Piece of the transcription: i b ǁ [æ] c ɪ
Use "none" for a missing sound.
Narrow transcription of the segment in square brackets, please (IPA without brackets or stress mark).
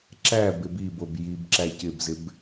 æ